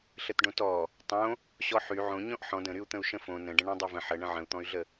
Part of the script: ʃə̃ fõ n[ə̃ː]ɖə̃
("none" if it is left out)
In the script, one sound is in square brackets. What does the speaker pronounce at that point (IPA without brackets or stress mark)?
ə̃